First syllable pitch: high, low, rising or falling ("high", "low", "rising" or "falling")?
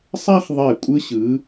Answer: high